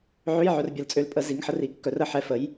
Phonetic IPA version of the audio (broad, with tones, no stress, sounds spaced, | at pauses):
ʕ ø˧˥˧ j ʕ œ˧ r bʲ ɐ˨˩ l t͡sʼ ø˧ l pʼ ə˨˩˦ z i˩˥ ŋ ħ ə˩˥ r i˨˩ kː œ˩˥ r ə˨˩ ħ ɛ˧ f ə˩˥ j